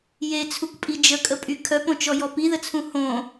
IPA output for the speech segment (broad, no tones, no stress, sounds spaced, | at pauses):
j e t͡sʰ u k pʼ i d͡ʒ ə kʼ ə pʼ y kʰ œ p õ t͡ʃ ɔ j ɔ p i ð ə t͡sʰ ũ h õ